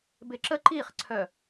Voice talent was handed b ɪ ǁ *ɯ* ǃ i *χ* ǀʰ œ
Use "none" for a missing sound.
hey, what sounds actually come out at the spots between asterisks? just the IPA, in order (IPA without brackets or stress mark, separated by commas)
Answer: ə, χ